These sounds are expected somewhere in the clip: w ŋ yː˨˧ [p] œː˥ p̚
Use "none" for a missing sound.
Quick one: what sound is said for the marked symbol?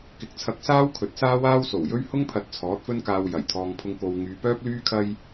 p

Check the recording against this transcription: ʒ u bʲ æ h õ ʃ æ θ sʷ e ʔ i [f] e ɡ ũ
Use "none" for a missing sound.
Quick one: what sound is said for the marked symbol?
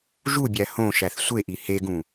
h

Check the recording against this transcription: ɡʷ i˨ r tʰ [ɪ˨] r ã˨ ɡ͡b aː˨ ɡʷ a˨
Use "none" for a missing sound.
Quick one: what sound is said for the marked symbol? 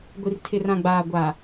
ɪ˨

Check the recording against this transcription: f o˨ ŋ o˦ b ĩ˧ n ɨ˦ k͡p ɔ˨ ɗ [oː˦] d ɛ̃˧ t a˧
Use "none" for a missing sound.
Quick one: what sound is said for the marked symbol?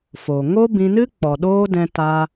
oː˦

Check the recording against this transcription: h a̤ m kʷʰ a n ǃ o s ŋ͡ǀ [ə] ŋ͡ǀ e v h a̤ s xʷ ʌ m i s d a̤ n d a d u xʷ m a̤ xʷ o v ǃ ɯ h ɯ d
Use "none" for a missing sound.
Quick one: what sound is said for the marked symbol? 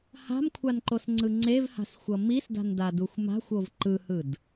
ɯ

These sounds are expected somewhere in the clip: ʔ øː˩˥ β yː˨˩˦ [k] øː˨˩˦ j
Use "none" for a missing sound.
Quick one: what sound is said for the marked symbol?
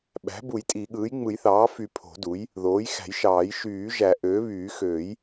x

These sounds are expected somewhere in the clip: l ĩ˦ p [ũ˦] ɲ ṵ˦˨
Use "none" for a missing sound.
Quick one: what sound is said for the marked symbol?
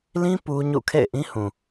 u˦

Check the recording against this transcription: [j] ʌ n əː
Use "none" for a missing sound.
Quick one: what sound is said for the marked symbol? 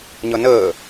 ɲ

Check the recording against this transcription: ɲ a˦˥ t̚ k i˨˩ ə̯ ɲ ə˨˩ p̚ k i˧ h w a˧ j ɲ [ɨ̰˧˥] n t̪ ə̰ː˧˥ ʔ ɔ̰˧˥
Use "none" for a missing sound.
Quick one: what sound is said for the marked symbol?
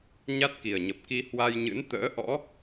ɨ̰˧˥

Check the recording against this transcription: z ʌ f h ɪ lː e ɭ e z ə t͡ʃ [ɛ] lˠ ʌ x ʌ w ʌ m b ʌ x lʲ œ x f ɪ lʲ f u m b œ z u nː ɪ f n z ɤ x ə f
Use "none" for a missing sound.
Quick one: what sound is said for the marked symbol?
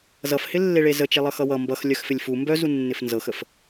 e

